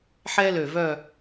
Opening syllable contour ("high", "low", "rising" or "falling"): high